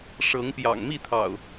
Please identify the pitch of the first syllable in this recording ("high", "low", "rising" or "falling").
rising